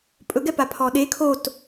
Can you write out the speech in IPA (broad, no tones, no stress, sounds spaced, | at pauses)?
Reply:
pʼ ɵ ɡ ɛ p a pʰ ɔ ɗ e kʰ o t